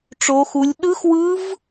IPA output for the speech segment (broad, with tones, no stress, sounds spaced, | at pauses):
ʈ͡ʂ o˦˥ x u˦˥ lʲ ɗ ɯ˦˥ x w ɯ˦˥ v